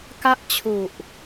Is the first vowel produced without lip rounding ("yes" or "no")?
yes